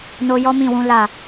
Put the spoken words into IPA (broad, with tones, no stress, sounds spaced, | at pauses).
n o˧ j ɔ˦ m ĩ˦˨ w ũ˨˦ l a˦˨